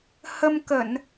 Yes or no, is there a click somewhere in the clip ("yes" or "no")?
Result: no